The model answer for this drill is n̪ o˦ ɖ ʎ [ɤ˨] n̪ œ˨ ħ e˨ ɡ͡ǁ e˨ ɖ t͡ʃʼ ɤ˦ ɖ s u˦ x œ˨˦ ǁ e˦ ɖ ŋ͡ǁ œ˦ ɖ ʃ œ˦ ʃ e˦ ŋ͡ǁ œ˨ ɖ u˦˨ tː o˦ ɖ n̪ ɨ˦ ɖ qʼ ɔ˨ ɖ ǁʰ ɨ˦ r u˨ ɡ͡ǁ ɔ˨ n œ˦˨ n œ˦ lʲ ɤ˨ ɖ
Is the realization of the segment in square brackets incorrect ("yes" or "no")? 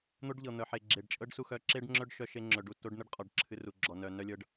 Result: no